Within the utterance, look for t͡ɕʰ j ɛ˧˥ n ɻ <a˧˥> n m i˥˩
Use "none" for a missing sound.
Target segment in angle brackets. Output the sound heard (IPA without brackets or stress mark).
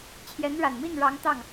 a˨˩